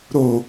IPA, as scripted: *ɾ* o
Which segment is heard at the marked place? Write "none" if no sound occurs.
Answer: ɾ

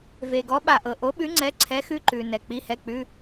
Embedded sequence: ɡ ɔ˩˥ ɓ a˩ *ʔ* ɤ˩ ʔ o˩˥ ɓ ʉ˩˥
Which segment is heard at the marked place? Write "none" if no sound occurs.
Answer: ʔ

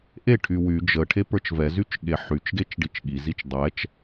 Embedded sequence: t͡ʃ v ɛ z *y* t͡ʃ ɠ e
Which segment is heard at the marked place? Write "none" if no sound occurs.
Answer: y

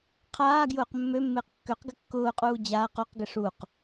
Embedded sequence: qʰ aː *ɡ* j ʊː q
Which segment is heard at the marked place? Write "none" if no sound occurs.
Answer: ɡ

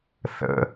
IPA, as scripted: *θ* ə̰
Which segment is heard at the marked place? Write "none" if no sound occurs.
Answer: θ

